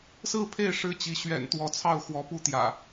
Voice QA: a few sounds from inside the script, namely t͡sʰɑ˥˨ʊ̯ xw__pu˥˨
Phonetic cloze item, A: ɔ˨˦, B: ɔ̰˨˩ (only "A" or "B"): A